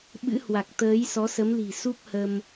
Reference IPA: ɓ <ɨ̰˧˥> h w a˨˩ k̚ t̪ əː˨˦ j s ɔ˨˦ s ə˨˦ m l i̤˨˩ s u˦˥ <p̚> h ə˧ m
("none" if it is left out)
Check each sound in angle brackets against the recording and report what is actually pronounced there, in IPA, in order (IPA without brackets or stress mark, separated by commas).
ɨ̰˧˥, p̚